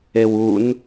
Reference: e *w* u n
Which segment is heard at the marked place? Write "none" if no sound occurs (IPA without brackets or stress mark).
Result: w